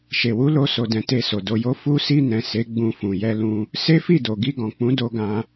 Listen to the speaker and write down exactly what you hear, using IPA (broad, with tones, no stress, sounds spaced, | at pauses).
ʃ e˨ w u˧ l o˧ s o˨ d ɛ̃˨ t e˧ s o˨ d o˧ j o˦ f u˧ s i˧ n ɛ̃˨ s e˨˦ ɡ͡b ũ˧ f ũ˨ j ɛ˧ l ũ˧ | s e˦ f i˦˨ d o˨ ɡ i˧ ɡ ɔ̃˨ k͡p ũ˨˦ d o˧ ɡ ã˧